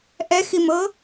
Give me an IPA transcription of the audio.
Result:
ʔ ɛ x i m ɤ

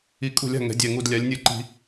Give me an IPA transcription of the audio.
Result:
i˨˩ kʼ ṳ˧˩˧ lʲ a̤˨˩ ŋ ɛ̤˩˧ dʲ ɛ˨˩ ŋ u˨˩ d lʲ a˩˧ lʲ nʲ ɯ˧˩˧ ǃ i̤˧˩˧

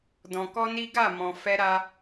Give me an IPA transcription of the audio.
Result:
d ɔ̃˧ k ɔ˦ n i˦ ɡ a˦˨ m ɔ̃˨ f ɛ˧ ɾ a˧

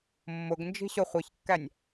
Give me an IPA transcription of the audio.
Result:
mː ʊ ɡ n d͡ʒ i̤ ɕ ʊ χʷ i ç kː æ nʲ

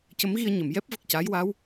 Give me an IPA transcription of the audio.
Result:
c ə˧˥ m ɣ i˧ ə̯ ɲ ə˨˩˨ m j ɛ˦˥ p̚ v ə˨˩ k̚ c aː˧˥ j w a˧˥ w

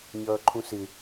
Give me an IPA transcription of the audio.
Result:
ɲ ʌː ǃʰ ũ s ɪ

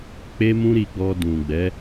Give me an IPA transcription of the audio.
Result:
k͡p e˦ m ũ˦ ɾ i˧ ɡ͡b ɔ˧ d ũ˨ ɡ͡b ɛ˨˦

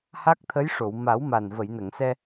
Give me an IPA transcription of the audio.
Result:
h a˦˥ k̚ t̪ʰ ə˧˥ j ʂ o˨˩˨ w m a˨˩˦ w m a˨˩ n v ə˨˩˨ j n ə˨˩˨ ŋ s ɛ˧

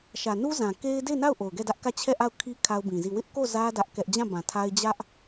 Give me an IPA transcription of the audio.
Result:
ʃ ä˨ n u˦ z ã˨ k e˦ ɪ̯ d e˦˨ ɪ̯ n a˦˨ ʊ̯ ʔ o˨ ʊ̯ ɡ ɛ˦˨ d ä˦ ʔ k ä˦˨ t͡ɕʰ ɛ˦˨ ʔ a˦˨ ʊ̯ kʰ i˦ kʰ a˦ ʊ̯ b ĩ˨ z i˦˨ w ɪ˦ ʔ k o˦˨ z ä˦ d ä˦ ʔ k ɛ˦ ʔ d͡ʑ ã˦˨ b ã˨ tʰ a˦ ɪ̯ d͡ʑ ä˦ ʔ

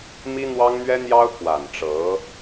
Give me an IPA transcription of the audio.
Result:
m i˥ n̪ w ɑ˥ ŋ n̪ ɥ ɛ˥ n̪ j ɑ˥ ʊ̯ k w a˨˩ n ʈ͡ʂ ɤ˧˥

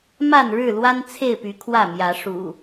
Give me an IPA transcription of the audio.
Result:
m a˥˨ n ɻ ɻ̩˥˨ l w a˦ n t͡sʰ e˥˨ ɪ̯ p y˨˦ kʰ w ä˥˨ m j ä˨˦ ʂ ṵ˨˩

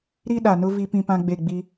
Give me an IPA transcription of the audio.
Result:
ɾ i˦ ɗ a˨ n ʊ˦ v i˦ p ĩ˦ p ã˦ ɡ͡b e˦˨ ɡ͡b i˦

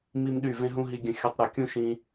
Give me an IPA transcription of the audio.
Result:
m i˦ m ɗ y˦˨ v ẽ˦ ɦ ũ˦ ɦ i˧ ɡʲ ə̃˧ xʲ u˧ tˤ ɾ u˨ kʲ ũ˦ ʃ ĩ˧

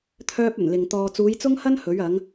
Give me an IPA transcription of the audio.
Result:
t̪ʰ œː˥ p̚ ɵ˨˩ n l ɪ˨ ŋ t̪ ɔː˨ t͡s uː˨˧ j t͡s ʊ˥ ŋ h ɐ˥ n h ɵ˨˥ ɥ ɐ˨˥ ŋ

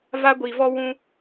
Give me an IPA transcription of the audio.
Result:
v a˦ ɡʷ i˨ v ɔ˦ w ũ˦

